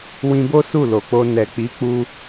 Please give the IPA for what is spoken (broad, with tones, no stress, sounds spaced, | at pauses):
w ĩ˧ b o˦ s u˦˨ l o˨ k͡p o˧ n ɛ˨ k͡p i˨˦ k͡p u˧